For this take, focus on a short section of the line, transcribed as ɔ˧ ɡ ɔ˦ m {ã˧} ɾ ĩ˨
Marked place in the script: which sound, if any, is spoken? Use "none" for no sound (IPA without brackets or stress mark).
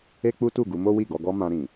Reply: ã˧